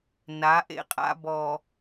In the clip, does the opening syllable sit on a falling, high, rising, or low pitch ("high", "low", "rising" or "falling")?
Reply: rising